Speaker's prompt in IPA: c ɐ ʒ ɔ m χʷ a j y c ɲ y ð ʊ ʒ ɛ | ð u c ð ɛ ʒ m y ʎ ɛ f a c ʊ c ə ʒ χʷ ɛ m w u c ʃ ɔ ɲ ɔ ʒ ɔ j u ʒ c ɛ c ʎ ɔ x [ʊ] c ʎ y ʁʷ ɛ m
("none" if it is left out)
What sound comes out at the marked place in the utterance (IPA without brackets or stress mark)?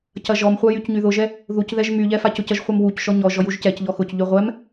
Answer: ʊ